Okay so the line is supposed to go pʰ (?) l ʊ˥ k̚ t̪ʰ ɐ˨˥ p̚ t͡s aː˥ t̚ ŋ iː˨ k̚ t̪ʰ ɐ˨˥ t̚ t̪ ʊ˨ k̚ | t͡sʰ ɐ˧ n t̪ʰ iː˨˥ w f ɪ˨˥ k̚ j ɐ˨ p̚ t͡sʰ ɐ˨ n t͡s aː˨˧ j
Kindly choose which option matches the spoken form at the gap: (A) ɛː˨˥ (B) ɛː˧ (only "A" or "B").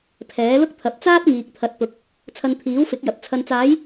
A